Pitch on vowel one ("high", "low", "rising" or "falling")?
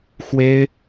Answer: high